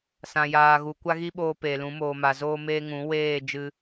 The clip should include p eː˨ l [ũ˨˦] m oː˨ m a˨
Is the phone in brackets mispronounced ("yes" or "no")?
no